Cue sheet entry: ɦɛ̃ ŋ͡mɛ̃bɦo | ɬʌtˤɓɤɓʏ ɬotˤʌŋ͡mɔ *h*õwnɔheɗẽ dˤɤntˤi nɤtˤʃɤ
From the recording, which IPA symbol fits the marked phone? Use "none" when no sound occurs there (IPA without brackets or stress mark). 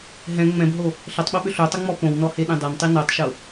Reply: p